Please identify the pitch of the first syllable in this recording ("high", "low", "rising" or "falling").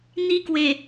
high